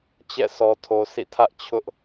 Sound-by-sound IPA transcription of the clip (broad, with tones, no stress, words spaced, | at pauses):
t͡ɕɛ̰˦˨sʰɔ˨tʰo˨ sʰḭ˦˨tʰä˦ʔ t͡ɕʰʊ˦ʔ